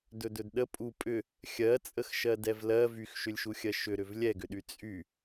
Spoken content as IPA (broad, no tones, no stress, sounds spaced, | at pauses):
d ɵ d ɵ d ɗ ə pʼ u pʼ ʏ | xʲ ɜ t͡sʼ ə x ʃ ɜ d ɛ v l ɜ v y x ʃ ʏ lʲ ʃ u xʲ ɜ ʃ ʏ ɾ ʏ v lʲ ɛ ɡ ʏ ɗ y t͡sʼ y